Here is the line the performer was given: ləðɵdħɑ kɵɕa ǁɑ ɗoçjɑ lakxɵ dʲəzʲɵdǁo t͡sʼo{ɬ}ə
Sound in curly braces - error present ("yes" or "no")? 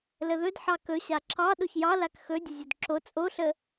no